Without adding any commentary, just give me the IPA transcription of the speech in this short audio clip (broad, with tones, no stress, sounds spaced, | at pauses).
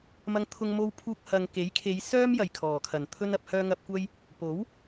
m ɐ˧ ŋ t̪ʰ ʊ˧ ŋ m o˧ w pʰ uː˧ k̚ h ɐ˨ ŋ k e˨˥ j kʰ e˨˧ j s œː˥ m j ɐ˨˩ j kʰ ɔː˨˩ kʰ ɐ˨˩ n t̪ʰ ɵ˥ n ɐ˧ p̚ h œː˧ ŋ ɐ˨ p̚ kʷ ɐ˧ j | p o˨˥ w